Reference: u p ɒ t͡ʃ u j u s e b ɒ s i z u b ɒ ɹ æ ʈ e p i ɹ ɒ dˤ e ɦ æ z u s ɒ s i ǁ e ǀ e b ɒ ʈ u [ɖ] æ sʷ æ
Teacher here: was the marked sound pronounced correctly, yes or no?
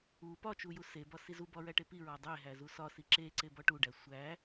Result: yes